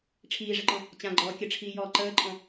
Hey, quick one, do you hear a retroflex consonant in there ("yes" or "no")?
yes